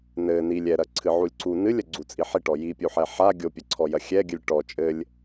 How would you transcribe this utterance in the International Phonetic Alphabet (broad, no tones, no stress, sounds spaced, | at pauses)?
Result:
n ɘ n i lʲ ɛ ɾ ɐ ǀʰ ɨ ʕ u lʲ ǀ u n ɨ lʲ ɐ ɡ͡ǀ u t͡sʼ i ħ i ʈ ɔ j i pʲ u ħ ɛ ħ a ɡʲ o pʲ ɐ ǀʰ ɔ j ɐ xʲ ɛ ɡʲ ɨ lʲ ʈ ɔ t͡ʃʼ ɘ lʲ